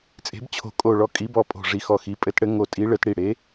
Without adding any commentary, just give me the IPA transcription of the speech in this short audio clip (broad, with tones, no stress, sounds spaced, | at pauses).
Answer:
t͡sʼ e̤˨˥ b t͡ɕʰ o̤˧˩ kʼ o˧˩ ɭ ɔ˧˩ kʼ i˨˥ b ɔ˧˩ pʼ o̤˧˩ ʐ i˧˩ x ɔ˧˩ x i˨˥ pʼ ɘ˨˥ t ɽ ɘ˨˥ ŋ o˧˩ tʼ i˨˥ ɭ ɘ˨˥ t ɽ i˧˩ ɽ e˨˥